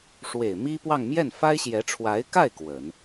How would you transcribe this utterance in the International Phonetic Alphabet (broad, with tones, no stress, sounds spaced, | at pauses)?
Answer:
ʂ w e˨˩ ɪ̯ m i˥ p w ɑ˥˧ ŋ m j ɛ˥˩ n f a˥ ɪ̯ ɕ j ɛ˧˥ ʈ͡ʂʰ w a˧˥ ɪ̯ k a˥˩ ɪ̯ k w ə˨˩˦ n